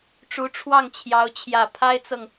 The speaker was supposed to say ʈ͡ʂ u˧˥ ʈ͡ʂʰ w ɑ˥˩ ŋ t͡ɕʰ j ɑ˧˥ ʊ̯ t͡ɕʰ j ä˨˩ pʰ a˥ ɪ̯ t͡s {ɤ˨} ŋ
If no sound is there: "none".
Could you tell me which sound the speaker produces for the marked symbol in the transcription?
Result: ɤ˨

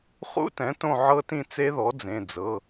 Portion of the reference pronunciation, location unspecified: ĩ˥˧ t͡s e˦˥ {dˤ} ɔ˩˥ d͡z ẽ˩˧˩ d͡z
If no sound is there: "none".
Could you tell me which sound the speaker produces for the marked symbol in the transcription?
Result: ð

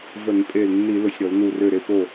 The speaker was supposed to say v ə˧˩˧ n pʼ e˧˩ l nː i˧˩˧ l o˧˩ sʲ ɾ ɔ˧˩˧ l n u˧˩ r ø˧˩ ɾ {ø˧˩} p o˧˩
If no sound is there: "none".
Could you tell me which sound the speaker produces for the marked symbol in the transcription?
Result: e˧˩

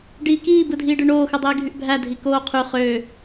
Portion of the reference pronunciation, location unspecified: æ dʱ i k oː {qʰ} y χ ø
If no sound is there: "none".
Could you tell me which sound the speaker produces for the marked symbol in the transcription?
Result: qʰ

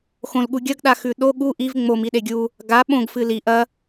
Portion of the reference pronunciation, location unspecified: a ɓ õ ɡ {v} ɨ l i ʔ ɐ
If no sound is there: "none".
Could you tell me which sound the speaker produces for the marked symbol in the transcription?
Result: f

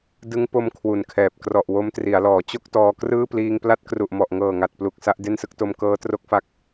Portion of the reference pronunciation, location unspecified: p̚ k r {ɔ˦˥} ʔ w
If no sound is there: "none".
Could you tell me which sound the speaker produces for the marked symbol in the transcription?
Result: ɔ˨˩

